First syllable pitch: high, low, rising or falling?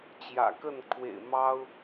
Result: low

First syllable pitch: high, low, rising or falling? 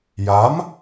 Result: rising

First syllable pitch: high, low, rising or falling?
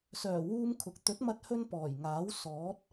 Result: low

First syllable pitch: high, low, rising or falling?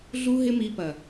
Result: high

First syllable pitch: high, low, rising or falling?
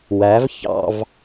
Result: rising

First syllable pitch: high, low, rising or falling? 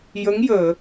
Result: rising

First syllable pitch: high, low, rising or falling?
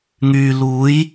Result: low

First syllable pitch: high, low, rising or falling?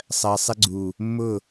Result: low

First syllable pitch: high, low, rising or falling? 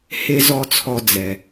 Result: high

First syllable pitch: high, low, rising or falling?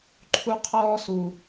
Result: high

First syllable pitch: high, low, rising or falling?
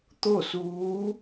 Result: falling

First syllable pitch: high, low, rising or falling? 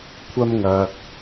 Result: high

